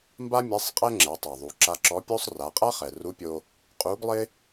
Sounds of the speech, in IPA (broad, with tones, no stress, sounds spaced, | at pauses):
m b a˥ mʲ ɛ˧˥ sˤ qʼ ɛ˥ ŋ͡ǁ ɛ˩˧ tˤ a˩ ðˤ u˩˧ ǁ a˧ ǁ ɔ˧˥ pʲ o˥ sˤ r a˩˧ qʼ a˥ χ ɛ˩ r u˧˥ pʲ o˧ | qʼ u˧˥ ɡ lˠ ɪ˥